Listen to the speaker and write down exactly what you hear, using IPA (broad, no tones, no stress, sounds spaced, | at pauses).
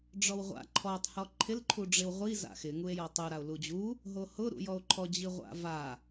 ɖ͡ʐ ɔ w ʁʷ a̰ ǃʰ ɔ tˤ h ɔ ǃʰ ɪ l ǃʰ u ɖ͡ʐ ɪ w ʁʷ i z a̰ x ɪ ŋ u e̯ j ɔ tˤ u ɾ a o̯ l u d͡ʑ u | ɦ o h ʊ ɾ ṵ j ɔ o̯ ǃʰ ɔ d͡ʑ i ʁʷ a̰ v a